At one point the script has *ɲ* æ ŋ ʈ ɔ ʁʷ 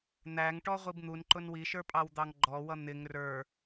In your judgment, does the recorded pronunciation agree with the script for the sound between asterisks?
no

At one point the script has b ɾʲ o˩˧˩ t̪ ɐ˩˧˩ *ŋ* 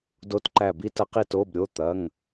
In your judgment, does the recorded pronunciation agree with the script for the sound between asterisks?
yes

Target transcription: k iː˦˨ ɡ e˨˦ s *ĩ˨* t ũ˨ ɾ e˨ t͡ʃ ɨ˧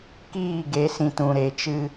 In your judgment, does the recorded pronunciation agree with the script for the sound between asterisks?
yes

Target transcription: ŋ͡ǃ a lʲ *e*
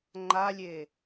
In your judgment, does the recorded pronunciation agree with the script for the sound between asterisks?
yes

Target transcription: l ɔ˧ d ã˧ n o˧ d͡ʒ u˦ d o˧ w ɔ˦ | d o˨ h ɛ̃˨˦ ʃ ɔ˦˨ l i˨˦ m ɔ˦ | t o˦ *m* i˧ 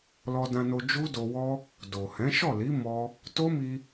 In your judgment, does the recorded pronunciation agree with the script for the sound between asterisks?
yes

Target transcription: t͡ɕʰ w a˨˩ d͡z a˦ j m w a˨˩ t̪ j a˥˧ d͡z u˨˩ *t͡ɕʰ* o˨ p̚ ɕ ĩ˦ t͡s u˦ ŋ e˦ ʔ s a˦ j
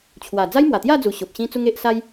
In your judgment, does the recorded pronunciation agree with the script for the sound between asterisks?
no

